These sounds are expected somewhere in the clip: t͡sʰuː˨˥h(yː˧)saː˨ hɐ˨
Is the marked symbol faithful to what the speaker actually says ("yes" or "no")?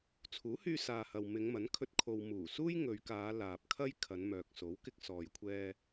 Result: yes